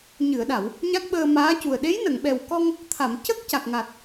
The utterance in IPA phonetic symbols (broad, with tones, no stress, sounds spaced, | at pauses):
ɲ ɨ˨˩˨ ə̯ ɗ a˨˩˨ w | ɲ a˦˥ k̚ ɓ əː˧ m aː˧˥ c u˨˩ ə̯ ɗ e˧˥ j n ə˨˩˨ ŋ ɓ ɛ˨˩ w k ɔ˧ ŋ | t̪ʰ a˨˩˨ m c ə˦˥ k̚ c a˨˩ k̚ ŋ a˨˩ t̚